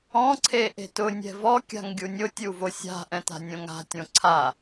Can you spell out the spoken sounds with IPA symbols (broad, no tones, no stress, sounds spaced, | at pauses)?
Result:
ɔ̃ ǀʰ e ʔ e̤ t ʊ nʲ ɛ̤ v ɔ kʲ a̤ ŋ ɡʲ u nʲ ʊ tʲ u v o sʲ a̤ ʔ ɛ̃ t a̤ nʲ õ ŋ a̤ tʲ õ ǀʰ a